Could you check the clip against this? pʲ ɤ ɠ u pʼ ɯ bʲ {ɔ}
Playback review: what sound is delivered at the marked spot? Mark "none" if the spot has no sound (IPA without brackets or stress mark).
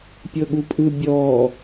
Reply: ɔ